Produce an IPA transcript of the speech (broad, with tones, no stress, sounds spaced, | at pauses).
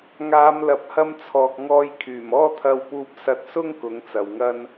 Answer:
ŋ aː˨˧ m l ɐ˨ p̚ h ɐ˧ m t͡sʰ ɔː˨ k̚ ŋ ɔː˧ j kʰ yː˨˩ m ɔː˥ t̪ʰ ɐ˧ w p uː˧ p̚ s ɐ˧ t̚ s ʊ˥ ŋ k ʊ˨˥ ŋ t͡s ɐ˨ w ŋ ɐ˥ n